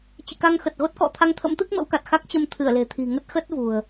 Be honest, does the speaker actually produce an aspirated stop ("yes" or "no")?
yes